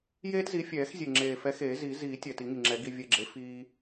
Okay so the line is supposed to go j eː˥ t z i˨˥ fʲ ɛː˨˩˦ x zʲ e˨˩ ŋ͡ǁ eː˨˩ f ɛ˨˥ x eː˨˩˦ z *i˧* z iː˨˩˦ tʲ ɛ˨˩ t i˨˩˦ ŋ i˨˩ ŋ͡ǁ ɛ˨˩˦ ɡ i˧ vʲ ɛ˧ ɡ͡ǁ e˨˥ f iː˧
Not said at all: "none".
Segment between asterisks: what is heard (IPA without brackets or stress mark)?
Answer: i˨˩˦